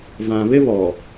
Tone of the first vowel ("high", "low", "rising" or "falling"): low